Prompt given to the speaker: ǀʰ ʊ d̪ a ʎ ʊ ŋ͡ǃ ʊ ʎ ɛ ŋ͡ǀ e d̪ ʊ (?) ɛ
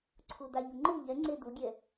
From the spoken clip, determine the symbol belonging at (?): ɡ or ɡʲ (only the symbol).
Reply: ɡʲ